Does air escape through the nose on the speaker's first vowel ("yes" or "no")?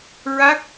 no